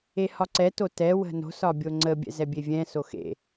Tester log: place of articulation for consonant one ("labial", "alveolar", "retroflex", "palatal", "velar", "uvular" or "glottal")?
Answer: glottal